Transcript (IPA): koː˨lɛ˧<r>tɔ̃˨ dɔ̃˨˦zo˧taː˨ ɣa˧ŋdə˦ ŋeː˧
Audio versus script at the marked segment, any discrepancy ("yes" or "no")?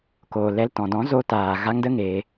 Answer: yes